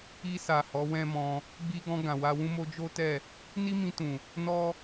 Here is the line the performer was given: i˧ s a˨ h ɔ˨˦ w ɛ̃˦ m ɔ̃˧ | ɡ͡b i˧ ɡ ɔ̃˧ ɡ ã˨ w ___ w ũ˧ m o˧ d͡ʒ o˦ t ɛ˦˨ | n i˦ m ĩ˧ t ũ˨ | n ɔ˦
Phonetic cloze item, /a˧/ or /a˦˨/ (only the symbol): a˧